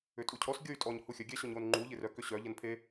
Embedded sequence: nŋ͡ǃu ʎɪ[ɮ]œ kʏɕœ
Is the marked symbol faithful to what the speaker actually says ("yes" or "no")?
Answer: no